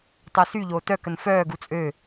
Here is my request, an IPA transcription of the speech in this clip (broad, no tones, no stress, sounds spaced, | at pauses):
tˤ ɛ s y ʎ oː t œ k ə n f œː ɡ u t͡sʼ ø